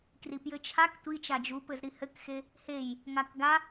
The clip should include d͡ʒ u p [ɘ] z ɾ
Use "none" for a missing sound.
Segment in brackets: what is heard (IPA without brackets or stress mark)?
ɘ